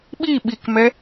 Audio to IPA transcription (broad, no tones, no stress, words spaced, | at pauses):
ɓi ɓikmɛ